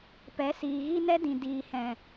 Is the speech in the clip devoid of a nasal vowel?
no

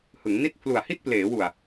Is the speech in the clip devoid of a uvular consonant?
yes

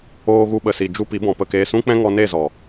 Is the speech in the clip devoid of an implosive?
no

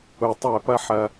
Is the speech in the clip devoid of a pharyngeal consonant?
no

